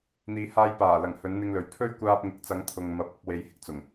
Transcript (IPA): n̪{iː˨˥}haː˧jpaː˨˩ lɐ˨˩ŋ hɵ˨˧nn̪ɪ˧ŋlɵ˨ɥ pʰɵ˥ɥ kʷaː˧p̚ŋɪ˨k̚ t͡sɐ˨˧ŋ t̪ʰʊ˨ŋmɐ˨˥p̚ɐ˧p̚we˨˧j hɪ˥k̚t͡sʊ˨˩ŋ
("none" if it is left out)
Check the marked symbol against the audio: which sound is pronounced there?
iː˨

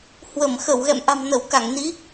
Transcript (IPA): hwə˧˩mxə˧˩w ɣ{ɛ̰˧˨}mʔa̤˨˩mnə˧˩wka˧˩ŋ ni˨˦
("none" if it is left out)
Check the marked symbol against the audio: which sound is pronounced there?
ɛ̰˧˨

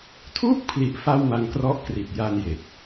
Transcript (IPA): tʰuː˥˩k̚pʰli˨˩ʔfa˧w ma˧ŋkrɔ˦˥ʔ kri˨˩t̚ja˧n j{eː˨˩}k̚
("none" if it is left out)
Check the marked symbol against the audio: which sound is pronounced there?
e˨˩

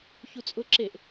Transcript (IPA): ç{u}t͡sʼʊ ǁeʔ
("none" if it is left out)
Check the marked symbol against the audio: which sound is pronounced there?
u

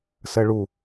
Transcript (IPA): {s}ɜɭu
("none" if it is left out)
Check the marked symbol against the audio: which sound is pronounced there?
s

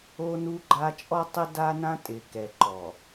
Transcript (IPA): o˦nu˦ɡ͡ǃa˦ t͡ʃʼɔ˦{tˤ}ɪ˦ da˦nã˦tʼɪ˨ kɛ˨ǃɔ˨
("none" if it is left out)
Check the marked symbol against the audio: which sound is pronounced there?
tˤ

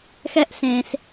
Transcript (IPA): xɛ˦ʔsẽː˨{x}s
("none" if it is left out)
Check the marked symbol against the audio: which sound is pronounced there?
none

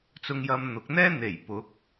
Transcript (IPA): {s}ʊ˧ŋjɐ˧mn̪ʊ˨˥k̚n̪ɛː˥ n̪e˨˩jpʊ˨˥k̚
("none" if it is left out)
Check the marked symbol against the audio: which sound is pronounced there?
t͡s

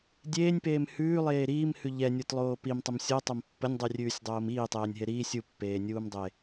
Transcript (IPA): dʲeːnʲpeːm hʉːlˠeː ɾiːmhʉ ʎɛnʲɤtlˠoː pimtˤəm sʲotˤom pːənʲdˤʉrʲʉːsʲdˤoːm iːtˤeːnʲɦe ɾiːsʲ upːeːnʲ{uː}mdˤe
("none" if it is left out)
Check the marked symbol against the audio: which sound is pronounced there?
uː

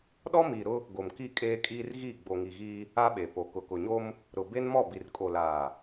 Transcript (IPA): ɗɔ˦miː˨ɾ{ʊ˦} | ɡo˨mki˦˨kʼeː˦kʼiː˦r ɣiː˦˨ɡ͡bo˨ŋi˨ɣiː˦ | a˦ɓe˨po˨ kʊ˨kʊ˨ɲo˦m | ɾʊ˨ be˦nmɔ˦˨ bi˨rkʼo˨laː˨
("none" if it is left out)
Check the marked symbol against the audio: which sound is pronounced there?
ʊ˦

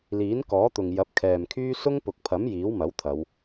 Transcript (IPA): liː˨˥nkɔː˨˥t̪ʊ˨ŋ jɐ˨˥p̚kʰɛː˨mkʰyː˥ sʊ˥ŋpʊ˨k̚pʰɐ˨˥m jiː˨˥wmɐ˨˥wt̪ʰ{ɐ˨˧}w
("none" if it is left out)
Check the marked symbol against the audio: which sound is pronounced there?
ɐ˨˧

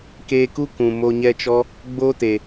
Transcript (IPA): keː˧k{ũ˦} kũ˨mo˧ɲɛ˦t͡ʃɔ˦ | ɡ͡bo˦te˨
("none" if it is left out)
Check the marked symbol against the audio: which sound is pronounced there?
u˦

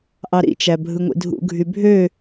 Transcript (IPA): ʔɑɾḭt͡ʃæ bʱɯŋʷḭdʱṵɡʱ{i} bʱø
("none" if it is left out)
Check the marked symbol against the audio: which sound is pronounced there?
y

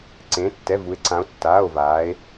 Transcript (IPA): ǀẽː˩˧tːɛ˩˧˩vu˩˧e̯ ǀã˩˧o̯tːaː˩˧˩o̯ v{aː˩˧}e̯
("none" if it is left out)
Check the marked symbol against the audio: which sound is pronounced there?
aː˩˧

